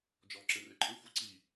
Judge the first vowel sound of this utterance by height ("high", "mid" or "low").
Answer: mid